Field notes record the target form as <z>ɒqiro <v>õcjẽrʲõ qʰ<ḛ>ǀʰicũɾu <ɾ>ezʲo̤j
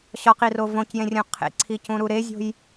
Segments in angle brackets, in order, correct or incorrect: incorrect, correct, correct, correct

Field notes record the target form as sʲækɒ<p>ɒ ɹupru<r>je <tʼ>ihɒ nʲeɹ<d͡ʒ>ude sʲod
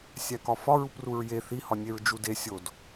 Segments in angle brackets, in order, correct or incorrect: incorrect, incorrect, incorrect, correct

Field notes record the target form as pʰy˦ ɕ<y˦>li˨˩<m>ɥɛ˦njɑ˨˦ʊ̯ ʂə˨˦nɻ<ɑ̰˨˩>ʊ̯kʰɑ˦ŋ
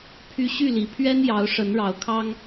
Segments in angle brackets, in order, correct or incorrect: incorrect, incorrect, incorrect

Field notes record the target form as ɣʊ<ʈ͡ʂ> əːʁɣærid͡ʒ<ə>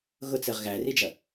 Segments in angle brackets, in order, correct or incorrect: incorrect, incorrect

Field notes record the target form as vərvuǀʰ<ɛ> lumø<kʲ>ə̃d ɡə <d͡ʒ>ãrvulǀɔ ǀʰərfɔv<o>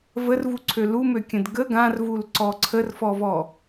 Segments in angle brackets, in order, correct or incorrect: incorrect, correct, incorrect, incorrect

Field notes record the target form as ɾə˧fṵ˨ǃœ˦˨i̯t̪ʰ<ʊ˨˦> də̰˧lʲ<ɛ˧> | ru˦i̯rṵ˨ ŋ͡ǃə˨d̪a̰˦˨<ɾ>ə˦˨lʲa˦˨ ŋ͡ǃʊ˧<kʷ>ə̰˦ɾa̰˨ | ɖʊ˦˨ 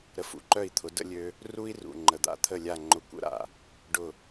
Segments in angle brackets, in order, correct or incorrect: correct, incorrect, incorrect, correct

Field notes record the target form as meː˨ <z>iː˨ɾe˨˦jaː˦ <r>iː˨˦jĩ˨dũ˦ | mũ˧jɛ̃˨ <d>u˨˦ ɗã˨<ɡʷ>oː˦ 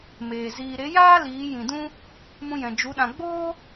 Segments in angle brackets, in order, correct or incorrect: correct, incorrect, incorrect, incorrect

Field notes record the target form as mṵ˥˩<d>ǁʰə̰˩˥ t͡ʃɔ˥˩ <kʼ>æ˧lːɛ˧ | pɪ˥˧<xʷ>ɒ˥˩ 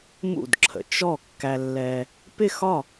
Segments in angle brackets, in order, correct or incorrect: correct, incorrect, incorrect

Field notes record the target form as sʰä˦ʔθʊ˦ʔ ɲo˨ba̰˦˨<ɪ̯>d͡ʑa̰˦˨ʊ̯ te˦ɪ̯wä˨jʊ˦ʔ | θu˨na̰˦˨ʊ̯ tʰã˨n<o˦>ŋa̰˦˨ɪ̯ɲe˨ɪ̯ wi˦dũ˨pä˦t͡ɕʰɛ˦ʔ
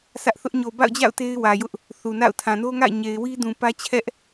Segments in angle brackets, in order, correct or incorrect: incorrect, correct

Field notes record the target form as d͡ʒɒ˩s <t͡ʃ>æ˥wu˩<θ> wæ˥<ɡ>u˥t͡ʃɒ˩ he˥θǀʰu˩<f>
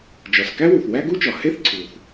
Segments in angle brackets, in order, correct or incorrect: incorrect, correct, correct, incorrect

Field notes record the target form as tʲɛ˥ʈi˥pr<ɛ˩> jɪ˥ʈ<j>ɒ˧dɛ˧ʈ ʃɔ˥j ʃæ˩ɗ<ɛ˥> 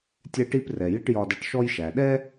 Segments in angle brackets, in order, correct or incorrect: correct, correct, correct

